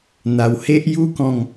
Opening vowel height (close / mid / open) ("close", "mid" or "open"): open